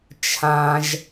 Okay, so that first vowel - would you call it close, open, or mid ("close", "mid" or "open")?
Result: open